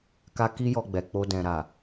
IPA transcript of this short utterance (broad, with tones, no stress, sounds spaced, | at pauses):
k a˦ k i˦ j ɔ˧ ɡ͡b ɛ˨ k͡p o˧ d ɛ̃˨ ɾ a˨